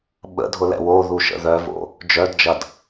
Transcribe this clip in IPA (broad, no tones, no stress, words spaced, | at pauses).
ɓə̰dʱʊlɛ̰ woðuʃə̰ ðœvo̰ | d͡ʒœdd͡ʒɐd